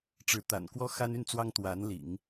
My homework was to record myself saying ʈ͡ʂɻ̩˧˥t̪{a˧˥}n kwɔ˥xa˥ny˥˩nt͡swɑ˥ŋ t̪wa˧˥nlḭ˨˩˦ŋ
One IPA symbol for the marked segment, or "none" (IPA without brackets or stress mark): a̰˨˩